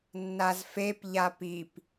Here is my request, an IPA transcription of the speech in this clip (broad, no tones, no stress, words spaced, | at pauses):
nːazfep ʎapip